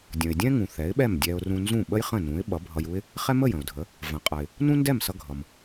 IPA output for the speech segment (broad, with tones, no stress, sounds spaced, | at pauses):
dʲ ə̃˩ ɪ̯ dʲ ɛ̃˥ ŋ ũ˩ θ ɛ˩˥ ɪ̯ ɓ ɛ˥˩ m dʲ ɛ˧ ʊ̯ r ũ˧ n z ũ˥˩ ɓ ə˥ j χ ə̃˥˩ n ũ˩˥ ɪ̯ ɓ ʌ˩˥ bʱ ʌ˧ j u˥ ɪ̯ | χ ɛ˥ m ə˥˩ j ə̃˩ ʊ̯ dʱ ə˩˥ | v ə̃˩ qʼ ʌ˩ ɪ̯ | n ũ˥ n d ɛ˥˩ m s ʌ˧ ɡʱ ʌ˩ m